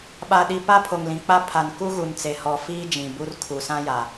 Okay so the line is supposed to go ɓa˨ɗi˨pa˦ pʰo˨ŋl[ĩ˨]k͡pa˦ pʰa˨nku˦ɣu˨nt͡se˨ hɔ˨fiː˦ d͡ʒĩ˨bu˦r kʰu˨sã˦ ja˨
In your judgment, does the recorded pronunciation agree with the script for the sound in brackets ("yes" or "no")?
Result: yes